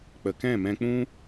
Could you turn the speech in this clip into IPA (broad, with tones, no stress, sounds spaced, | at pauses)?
k͡p ə˨ k ɛ̃˦˨ m ɛ̃˧ k͡p ũ˦